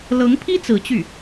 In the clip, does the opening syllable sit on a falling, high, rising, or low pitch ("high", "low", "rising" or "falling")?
rising